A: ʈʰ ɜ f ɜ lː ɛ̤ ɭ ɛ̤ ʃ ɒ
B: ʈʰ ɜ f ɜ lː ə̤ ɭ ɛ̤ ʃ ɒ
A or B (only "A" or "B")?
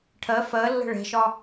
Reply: B